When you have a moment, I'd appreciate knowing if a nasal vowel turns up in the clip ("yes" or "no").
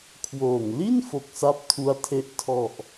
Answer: no